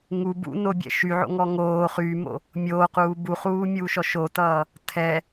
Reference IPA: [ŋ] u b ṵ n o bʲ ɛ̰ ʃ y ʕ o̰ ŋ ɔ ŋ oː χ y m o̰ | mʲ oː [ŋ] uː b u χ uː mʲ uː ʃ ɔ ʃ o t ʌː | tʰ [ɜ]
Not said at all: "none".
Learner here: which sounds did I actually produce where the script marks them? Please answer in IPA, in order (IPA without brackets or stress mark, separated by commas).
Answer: ŋ, q, ɛ